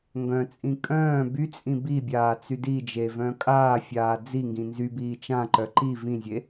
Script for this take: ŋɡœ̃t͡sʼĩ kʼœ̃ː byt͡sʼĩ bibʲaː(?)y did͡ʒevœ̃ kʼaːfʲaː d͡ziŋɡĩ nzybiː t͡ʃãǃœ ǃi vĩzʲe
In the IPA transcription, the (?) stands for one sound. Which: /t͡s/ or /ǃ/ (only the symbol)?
t͡s